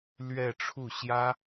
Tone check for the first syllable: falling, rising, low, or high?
falling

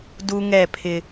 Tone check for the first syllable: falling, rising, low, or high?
high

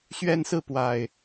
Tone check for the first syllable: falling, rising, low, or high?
high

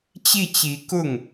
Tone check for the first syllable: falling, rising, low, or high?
falling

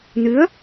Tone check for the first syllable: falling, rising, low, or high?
rising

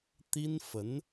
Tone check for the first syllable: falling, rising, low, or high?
high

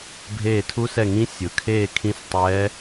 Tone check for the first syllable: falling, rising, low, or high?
falling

